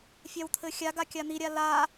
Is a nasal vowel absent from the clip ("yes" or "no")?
yes